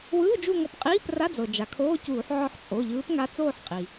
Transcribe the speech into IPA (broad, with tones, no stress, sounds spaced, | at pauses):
w ɯː˧˥˧ d͡ʒ u˦˨ ŋ ɔ˧˩˧ p qʼ iː˧˥˧ p r a˧˥˧ d͡z ɤ˩ d͡ʒ a˩ kʰ oː˧˥˧ c uː˧˩˧ ħ ʕ ɔ˦˨ ħ t͡sʼ o˩˧˩ ʎ ɯː˧˥ p ŋ a˧˥ t͡s oː˦˨ ħ qʼ i˩